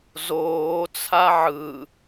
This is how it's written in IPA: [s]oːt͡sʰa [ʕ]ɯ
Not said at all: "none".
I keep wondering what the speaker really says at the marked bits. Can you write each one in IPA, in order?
z, ʕ

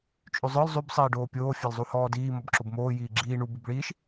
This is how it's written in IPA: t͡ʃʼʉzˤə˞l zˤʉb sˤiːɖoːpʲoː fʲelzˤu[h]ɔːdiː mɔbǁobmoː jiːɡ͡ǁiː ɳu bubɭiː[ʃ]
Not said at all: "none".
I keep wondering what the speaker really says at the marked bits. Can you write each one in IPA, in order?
h, ʃ

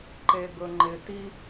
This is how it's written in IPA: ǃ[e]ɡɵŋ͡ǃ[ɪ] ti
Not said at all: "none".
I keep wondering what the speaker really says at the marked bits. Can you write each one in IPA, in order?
e, ɪ

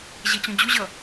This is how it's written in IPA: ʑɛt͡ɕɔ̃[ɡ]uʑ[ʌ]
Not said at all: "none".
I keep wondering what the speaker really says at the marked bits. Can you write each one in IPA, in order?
d͡ʑ, ʌ

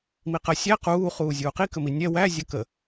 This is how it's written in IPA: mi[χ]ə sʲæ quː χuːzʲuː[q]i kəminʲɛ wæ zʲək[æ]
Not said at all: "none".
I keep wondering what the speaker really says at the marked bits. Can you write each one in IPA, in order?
q, q, ə

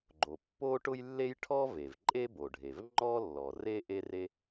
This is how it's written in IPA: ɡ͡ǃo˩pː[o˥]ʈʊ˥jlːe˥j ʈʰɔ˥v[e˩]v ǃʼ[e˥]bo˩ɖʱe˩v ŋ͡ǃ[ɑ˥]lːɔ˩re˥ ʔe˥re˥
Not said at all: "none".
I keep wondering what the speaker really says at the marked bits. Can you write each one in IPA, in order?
o˥, e˩, e˥, ɔ˥

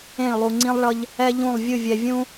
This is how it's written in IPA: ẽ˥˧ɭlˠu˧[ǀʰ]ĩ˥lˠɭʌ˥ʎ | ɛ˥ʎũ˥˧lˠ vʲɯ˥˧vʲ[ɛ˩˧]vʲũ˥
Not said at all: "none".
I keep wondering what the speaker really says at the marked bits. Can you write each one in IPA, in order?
ŋ͡ǀ, ɛ˧

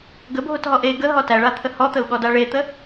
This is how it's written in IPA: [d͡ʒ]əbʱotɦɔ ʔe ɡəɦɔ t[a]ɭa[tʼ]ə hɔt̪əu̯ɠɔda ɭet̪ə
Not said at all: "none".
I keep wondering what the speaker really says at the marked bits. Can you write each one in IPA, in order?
ɡ, æ, t̪ʰ

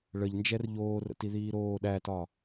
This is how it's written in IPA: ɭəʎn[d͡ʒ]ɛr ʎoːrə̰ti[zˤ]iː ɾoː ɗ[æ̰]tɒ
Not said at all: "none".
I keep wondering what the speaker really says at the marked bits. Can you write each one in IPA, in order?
d͡ʒ, ð, æ

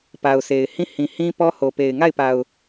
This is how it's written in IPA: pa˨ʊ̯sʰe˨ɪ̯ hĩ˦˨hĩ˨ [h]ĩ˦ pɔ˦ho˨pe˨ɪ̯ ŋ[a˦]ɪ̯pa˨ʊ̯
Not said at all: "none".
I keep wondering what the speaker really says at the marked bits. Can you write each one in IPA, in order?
h, a˦˨

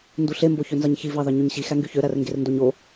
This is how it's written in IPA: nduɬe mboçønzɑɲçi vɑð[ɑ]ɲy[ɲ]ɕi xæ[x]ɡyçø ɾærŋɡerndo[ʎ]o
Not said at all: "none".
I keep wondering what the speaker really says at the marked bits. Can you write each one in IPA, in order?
ɑ, ɲ, ŋ, ɲ

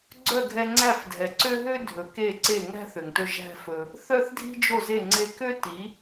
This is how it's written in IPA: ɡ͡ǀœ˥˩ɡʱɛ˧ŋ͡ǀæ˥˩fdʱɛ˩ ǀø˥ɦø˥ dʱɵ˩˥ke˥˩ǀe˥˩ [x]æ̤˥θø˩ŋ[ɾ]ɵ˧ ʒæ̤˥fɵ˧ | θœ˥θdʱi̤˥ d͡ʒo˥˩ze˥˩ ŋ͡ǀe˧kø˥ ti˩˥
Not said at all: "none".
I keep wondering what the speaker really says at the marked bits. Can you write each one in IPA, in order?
ŋ, t

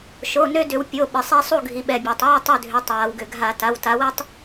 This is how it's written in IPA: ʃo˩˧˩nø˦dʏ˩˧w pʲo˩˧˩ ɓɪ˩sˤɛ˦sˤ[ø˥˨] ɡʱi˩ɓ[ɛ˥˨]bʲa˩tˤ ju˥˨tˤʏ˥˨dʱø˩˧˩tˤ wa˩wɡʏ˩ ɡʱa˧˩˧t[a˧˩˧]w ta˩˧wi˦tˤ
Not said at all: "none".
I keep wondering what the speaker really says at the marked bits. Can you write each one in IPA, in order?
u˥˨, ɛ˩, a˩˧˩

